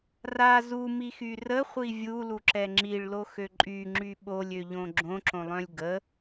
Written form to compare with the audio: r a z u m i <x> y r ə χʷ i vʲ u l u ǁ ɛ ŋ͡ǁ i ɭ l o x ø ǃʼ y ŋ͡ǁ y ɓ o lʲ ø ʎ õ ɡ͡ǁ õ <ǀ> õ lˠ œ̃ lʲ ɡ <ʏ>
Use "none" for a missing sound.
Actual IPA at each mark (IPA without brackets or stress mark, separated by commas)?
x, ǁ, ə